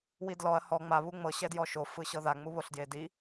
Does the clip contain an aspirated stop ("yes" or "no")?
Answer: no